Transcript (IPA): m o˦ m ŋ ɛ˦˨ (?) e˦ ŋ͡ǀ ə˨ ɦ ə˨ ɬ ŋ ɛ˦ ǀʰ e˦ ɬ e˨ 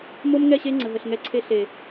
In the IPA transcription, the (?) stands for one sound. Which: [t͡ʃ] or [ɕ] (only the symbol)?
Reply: ɕ